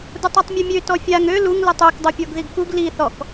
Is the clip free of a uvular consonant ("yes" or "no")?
yes